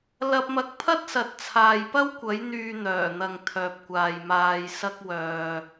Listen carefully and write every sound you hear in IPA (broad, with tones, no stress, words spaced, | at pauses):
lɐ˧p̚mɐ˧k̚pʰɐ˥t̚ sɐ˨t̚ t͡sʰaː˨jpɐ˥wkʷɐ˨˥j n̪yː˨ n̪œː˨˩n̪ɐ˨ŋ t̪ʰœː˨p̚kʷaː˨jmaː˧j sɐ˧k̚ wœː˨